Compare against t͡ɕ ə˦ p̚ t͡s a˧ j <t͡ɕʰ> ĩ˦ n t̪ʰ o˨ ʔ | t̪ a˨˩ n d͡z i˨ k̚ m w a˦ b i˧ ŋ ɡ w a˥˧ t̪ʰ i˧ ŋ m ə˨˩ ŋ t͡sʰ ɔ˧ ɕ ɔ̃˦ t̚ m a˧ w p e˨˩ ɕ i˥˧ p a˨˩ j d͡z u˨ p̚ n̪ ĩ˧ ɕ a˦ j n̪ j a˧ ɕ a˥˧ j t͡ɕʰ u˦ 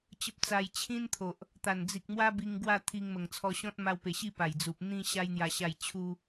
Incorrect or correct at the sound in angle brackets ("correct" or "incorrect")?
correct